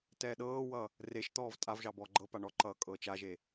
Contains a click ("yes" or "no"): yes